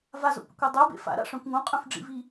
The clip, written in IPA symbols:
vazo̰pḭkʷɤ dˤœbḛ fa̰ɾa̰ʂœ̃kʷ ŋõqʼœ̃fɖ͡ʐḭvi

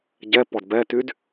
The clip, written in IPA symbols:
ɟɛp ɔdbɛtyd

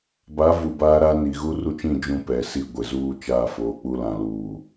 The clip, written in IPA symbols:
ba˨˦ vu˨baː˦ɾa˦ ni˨ ɣu˦ru˦t͡ʃĩ˦˨ d͡ʒũ˦pɛ˨ si˦˨ ɡʷɪ˨zuː˦t͡ʃaː˦˨foː˨˦ k͡pu˦lã˨luː˨

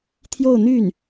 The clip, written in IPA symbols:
t̪ʰjo˥˧ʊ̯n̪y˥˩n

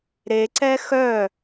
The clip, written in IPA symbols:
ɾeǀɛ xœ

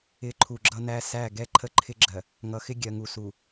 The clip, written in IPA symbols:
ɪ˨ ǃʰu˨ɡ͡ǁʌ˦næ˦ sæ˦˨ ɡɛ˦ǃʰə˦ǃʰɪ˦ɡ͡ǁɜ˨ | ŋʌ˨xɪ˦ ɡʲɜ˨ŋu˨su˨

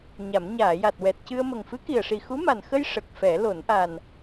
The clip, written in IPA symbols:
ɲa˨˩˦m ɲaː˨˩˨ja˨˩t̚ wɛ˨˩t̚cɨ˧ə̯ mə˨˩ŋfɨ˧˥ki˨˩ə̯ʂi˨˩ xu˧˥ma˨˩nxə˧j ʂə˨˩k̚fɛ˨˩˦ lo˨˩˦nʔa˨˩n

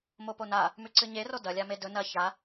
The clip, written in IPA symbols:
mopona | mʉǀɨɲero dɐlʲa medɵ nɐ ça

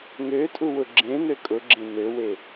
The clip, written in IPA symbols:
ŋøtʼuwʊ ɡ͡ǁẽn̪ø kʼʊɡ͡ǁẽ nøwe

